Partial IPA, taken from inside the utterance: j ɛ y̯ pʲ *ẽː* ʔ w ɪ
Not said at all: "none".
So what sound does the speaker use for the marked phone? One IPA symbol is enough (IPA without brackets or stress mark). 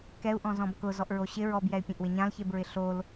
ẽ